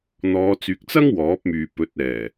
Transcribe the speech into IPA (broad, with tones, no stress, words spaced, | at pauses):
n̪ɔː˨˧t͡syː˨k̚t͡sɐ˥ŋ wɔː˨˥p̚myː˨pɵ˨˥t̚ɛː˨˩